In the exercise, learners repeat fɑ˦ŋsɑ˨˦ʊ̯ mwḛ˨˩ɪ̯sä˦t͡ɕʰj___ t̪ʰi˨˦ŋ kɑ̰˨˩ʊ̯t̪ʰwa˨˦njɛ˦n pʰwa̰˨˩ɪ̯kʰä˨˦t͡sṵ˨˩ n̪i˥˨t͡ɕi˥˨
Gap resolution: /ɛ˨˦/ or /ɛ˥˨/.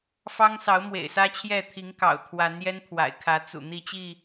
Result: ɛ˥˨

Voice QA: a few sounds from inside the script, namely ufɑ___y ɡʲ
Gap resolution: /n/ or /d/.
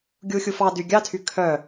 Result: d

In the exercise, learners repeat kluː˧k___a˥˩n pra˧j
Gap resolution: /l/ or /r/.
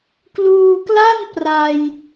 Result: l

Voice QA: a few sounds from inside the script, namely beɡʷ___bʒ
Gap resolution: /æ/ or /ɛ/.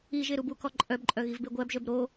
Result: æ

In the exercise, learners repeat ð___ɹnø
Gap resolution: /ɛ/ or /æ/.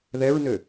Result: ɛ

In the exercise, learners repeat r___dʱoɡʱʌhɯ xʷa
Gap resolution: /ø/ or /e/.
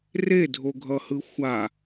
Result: e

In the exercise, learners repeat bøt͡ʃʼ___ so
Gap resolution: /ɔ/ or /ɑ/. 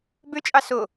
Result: ɑ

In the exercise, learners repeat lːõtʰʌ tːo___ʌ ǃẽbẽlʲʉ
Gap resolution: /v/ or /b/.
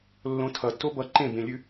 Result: b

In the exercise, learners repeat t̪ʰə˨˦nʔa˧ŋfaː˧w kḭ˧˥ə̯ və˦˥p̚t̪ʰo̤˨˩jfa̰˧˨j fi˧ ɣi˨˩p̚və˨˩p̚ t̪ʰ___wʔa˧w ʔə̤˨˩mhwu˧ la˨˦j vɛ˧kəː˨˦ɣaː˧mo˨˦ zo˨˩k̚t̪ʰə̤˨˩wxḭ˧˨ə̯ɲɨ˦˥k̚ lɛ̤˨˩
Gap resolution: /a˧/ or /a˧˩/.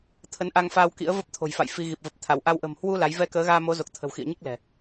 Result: a˧˩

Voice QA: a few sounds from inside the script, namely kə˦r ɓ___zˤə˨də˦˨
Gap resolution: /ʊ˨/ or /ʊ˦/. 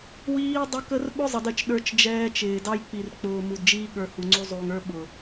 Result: ʊ˦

